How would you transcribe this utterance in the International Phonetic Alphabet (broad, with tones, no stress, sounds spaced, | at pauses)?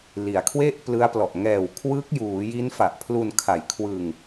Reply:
l i˩˦ a̯ kʰ w e˥˩ ʔ p l ɯ˦˥ a̯ p l ɔ˨˩ ʔ ŋ ɛː˨˩ w kʰ w ɯ˦˥ k̚ j uː˩˦ j i˦˥ n f a˨˩ ʔ pʰ l u˧ n kʰ a˨˩ j kʰ w ɯ˧ ŋ